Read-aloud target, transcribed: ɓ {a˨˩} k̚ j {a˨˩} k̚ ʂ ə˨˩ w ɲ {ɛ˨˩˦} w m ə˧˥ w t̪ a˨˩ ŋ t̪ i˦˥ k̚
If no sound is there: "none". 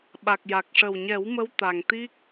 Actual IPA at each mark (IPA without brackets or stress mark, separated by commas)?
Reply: a˨˩, a˨˩, ɛ˨˩˦